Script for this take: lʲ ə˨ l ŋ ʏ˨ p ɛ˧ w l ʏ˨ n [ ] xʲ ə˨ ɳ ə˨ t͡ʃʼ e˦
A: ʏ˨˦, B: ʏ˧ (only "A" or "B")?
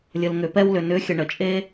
A